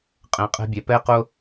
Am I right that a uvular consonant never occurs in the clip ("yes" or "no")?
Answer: no